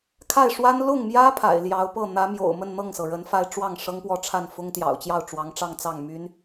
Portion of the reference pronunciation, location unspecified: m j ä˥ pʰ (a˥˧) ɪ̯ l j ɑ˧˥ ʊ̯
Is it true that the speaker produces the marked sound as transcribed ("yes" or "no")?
no